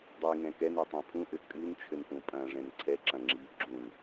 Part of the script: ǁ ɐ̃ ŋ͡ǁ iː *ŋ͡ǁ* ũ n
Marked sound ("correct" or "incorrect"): incorrect